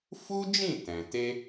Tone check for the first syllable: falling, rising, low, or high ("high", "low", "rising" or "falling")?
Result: high